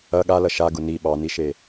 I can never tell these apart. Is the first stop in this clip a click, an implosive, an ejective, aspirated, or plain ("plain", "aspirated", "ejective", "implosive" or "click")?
implosive